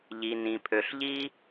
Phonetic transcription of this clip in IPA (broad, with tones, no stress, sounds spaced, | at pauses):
ʎ i˩ n ĩ˩ pʰ ø˩ ɬ ʎ i˧